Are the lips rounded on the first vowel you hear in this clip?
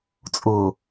yes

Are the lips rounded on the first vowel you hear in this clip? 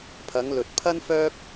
no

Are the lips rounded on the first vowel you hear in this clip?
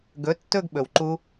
yes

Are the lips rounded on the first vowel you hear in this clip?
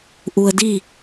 yes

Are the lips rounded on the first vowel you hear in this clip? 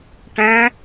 no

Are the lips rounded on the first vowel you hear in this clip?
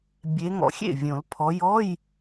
no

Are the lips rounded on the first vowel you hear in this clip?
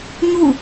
yes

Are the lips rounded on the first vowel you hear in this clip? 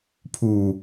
yes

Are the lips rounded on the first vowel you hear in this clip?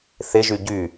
no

